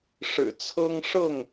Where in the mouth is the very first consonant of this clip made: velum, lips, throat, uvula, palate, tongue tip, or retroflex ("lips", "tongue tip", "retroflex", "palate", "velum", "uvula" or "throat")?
retroflex